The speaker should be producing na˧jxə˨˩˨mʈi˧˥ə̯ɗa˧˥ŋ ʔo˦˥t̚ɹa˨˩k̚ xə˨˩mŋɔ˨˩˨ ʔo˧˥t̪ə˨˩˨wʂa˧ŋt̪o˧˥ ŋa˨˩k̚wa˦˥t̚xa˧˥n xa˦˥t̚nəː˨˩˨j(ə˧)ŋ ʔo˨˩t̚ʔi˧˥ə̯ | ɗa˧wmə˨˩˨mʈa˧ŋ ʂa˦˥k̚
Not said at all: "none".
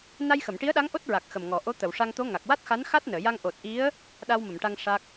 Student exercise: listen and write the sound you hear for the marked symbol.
a˧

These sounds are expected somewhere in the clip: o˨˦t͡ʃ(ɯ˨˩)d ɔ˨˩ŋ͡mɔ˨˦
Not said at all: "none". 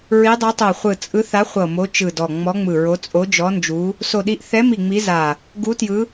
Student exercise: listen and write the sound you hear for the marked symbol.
ɯ˨˩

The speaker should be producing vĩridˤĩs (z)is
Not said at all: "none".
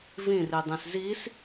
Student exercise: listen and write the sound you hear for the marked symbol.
z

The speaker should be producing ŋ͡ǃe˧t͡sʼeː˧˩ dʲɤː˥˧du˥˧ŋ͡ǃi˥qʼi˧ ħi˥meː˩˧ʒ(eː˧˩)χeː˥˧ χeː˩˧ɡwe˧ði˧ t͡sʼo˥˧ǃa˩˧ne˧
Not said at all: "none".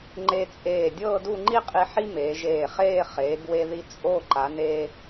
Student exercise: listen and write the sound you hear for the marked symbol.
eː˧˩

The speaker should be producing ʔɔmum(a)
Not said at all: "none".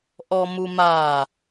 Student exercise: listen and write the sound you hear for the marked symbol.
a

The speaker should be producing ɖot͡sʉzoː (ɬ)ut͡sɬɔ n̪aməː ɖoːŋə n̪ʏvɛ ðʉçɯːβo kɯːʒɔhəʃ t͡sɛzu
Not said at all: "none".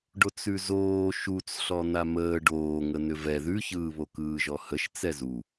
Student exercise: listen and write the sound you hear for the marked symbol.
ʃ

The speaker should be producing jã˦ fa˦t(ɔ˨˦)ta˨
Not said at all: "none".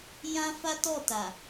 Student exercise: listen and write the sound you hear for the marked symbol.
ɔ˦˨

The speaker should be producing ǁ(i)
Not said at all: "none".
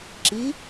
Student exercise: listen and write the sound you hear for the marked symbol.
i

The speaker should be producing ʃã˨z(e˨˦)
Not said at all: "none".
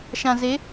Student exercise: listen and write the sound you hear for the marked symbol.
e˨˦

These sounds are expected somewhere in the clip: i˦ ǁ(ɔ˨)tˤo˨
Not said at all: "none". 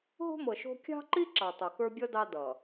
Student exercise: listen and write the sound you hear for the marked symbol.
ɑ˨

